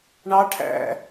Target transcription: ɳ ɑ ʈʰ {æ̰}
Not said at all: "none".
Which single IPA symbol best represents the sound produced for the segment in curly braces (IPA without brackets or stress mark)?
æ̰